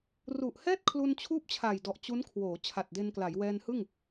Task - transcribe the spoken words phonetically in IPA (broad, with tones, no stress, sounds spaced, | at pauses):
r u˨˩ ʔ h ɛː˥˩ t̚ kʰ l u˧ n t͡ɕʰ uː˥˩ p̚ t͡ɕʰ a˨˩ j d ɔ˨˩ ʔ t͡ɕ u˦˥ n kʰ w oː˩˦ t͡ɕʰ a˨˩ t̚ d e˧ n k l a˩˦ j w ɛː˧ n h ɯ˥˩ ŋ